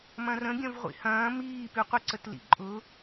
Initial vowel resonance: nasal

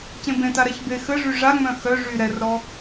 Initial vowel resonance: nasal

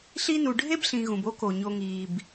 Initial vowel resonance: oral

